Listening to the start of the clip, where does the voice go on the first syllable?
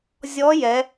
rising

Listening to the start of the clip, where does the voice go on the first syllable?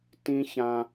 high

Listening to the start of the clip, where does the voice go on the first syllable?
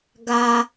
high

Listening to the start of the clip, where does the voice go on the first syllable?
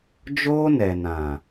high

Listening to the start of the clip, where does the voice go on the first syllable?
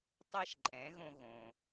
high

